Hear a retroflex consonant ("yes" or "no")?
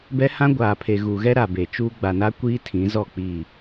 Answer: no